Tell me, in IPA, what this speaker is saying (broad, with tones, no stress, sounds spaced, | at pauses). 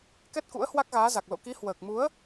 k ɛ˦˥ t̚ k ṵ˧˥ ə̯ h w a˦˥ k̚ ɣ aː˨˦ z a˨˩ k̚ l o̰˧˨ k i˨˦ h w əː˨˩ k̚ m u˨˦ ə̯